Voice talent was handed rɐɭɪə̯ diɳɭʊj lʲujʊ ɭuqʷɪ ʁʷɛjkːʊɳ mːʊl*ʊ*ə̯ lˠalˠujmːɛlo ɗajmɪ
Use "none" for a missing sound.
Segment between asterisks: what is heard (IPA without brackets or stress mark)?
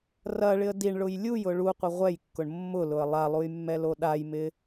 ʊ